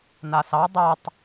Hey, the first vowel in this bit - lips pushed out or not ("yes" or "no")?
no